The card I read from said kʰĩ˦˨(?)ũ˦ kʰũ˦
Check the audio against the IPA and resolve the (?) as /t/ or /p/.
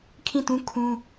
t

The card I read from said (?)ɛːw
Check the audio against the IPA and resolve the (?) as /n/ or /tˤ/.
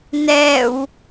n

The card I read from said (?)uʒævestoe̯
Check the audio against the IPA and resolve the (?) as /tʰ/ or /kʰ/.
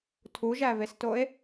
tʰ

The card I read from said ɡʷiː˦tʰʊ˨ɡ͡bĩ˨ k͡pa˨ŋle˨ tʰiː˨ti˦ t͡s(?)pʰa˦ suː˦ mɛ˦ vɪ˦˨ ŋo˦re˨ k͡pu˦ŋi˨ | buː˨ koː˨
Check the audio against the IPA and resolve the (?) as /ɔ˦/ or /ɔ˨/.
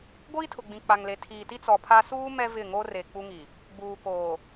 ɔ˨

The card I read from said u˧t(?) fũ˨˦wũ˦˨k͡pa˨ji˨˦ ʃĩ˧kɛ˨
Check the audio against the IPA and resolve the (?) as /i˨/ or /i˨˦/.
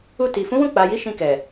i˨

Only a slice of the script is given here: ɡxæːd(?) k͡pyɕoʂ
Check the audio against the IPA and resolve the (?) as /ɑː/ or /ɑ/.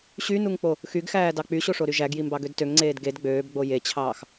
ɑ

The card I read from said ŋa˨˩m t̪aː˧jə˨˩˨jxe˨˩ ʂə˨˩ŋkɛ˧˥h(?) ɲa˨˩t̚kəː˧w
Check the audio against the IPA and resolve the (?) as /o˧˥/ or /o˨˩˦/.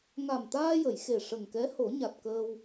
o˨˩˦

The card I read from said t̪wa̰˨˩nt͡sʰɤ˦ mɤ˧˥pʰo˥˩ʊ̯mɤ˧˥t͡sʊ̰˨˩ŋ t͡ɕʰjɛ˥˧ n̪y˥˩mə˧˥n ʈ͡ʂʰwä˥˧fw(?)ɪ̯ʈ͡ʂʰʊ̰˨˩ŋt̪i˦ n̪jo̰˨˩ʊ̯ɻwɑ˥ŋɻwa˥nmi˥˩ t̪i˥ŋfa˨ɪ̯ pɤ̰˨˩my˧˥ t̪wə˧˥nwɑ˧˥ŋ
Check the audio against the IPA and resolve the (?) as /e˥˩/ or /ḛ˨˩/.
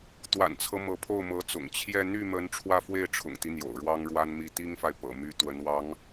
e˥˩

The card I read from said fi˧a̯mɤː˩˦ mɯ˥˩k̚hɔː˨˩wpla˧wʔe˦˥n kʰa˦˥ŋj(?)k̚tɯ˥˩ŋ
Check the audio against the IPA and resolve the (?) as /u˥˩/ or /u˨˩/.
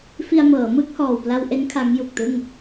u˨˩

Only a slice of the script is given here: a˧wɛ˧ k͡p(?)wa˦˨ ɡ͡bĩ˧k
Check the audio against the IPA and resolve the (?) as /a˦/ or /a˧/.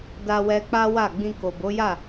a˦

